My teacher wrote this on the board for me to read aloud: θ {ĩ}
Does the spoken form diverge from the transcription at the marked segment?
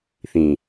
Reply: no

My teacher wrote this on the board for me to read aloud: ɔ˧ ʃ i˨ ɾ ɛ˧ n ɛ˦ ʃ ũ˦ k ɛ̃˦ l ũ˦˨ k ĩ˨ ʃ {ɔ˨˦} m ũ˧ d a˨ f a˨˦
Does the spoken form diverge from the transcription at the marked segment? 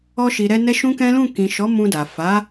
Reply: no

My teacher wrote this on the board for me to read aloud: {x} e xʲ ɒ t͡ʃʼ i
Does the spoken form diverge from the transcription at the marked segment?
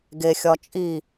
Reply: yes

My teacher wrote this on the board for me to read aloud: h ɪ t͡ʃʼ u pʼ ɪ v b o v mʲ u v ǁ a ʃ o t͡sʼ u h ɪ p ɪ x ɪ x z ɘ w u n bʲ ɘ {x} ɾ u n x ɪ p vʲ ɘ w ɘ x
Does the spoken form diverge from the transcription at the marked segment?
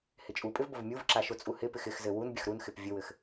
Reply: no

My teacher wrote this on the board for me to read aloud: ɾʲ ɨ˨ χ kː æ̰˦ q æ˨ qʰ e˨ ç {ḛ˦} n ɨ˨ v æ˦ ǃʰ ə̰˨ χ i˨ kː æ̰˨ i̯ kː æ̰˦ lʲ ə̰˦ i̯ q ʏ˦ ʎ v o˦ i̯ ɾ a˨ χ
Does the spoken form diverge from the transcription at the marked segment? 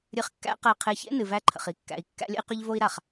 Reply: no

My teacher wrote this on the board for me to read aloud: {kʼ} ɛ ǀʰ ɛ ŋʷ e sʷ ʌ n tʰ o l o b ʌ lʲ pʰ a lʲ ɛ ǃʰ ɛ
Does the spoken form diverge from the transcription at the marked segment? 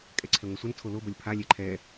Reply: no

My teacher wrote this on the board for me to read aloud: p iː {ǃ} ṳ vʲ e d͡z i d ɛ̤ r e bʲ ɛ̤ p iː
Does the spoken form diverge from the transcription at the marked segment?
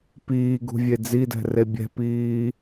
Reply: yes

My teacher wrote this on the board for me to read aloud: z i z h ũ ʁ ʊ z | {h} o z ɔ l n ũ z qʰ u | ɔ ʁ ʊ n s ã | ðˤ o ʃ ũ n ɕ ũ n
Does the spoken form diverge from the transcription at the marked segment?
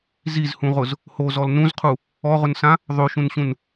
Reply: no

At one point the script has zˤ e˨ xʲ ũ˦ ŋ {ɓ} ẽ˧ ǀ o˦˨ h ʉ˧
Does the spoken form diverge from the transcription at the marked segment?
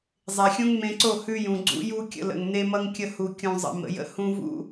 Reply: yes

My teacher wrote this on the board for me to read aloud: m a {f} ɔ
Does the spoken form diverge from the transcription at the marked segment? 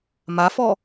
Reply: no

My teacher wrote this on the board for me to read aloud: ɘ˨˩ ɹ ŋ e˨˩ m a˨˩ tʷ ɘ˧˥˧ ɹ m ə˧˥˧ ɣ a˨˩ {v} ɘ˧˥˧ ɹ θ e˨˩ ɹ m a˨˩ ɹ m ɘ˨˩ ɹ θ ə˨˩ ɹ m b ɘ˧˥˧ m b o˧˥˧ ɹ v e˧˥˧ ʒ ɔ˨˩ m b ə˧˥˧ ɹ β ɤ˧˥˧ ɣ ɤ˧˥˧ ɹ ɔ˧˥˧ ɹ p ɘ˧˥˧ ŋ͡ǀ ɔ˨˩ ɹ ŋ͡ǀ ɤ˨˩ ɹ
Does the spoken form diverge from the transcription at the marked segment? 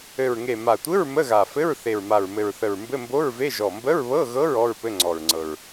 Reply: yes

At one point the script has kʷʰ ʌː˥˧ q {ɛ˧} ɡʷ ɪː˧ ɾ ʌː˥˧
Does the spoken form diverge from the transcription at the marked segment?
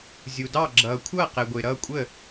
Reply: no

